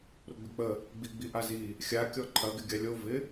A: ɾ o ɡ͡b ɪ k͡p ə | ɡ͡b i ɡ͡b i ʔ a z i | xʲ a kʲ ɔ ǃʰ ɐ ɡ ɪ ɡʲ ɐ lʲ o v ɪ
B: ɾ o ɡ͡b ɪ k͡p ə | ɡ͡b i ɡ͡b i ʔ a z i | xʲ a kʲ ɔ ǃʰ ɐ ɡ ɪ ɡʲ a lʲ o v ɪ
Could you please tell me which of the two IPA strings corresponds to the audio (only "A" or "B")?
B